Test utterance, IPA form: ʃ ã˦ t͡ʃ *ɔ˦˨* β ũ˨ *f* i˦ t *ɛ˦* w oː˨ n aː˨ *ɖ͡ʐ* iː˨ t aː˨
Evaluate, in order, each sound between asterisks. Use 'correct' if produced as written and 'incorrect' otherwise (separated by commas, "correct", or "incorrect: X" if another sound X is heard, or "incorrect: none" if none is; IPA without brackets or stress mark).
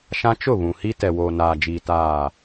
incorrect: ʊ˦˨, incorrect: h, incorrect: ɛ˨, incorrect: d͡ʒ